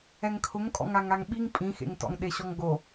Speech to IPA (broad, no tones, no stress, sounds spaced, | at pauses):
ɛ ŋ kʰ ʊ ŋ kʼ ɔ̰ ŋ a ŋ a ŋ ɓ i ŋ pʼ ĩ x ḛ ŋ t ɔ̰ ŋ ɗ e ɕ ɔ ŋ ɡ o